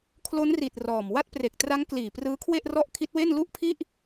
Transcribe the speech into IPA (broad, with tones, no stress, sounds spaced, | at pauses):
kʰ l o˦˥ n r i˨˩ t̚ r ɔː˨˩ m w a˦˥ t̚ p r e˨˩ k̚ t r a˦˥ ŋ k l iː˨˩ p r ɯː˦˥ kʰ w e˥˩ ʔ r ɔ˥˩ ʔ kʰ i˦˥ t̚ w e˥˩ n l u˥˩ ʔ pʰ i˥˩ ʔ